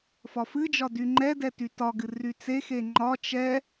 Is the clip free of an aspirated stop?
yes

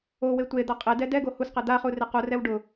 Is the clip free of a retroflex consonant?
no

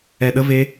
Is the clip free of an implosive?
no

